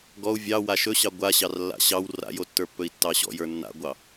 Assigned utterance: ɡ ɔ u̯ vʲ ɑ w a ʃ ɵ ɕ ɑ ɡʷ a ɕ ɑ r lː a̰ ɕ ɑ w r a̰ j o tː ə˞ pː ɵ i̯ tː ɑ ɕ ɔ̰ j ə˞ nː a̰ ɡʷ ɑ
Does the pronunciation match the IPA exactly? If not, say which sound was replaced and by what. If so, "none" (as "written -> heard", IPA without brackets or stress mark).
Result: none